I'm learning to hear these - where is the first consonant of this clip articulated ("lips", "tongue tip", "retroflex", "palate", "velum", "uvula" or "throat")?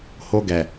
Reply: throat